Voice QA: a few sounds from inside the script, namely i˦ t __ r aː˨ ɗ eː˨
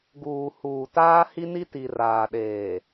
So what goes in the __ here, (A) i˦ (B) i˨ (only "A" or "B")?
B